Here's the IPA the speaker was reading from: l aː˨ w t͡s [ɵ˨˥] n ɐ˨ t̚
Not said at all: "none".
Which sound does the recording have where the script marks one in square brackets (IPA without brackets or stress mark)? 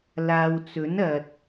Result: ɵ˨˥